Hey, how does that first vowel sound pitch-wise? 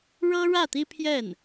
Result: high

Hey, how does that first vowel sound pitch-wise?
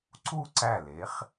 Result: falling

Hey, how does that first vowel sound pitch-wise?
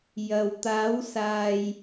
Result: low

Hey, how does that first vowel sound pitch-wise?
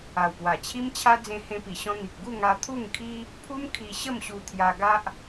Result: low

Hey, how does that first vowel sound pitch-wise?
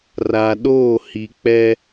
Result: low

